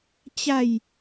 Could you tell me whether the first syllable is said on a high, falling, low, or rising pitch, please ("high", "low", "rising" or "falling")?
falling